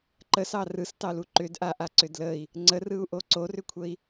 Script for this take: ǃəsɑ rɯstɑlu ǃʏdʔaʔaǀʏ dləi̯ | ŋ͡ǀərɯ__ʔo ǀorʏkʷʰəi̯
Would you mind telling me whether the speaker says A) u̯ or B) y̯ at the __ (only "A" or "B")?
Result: A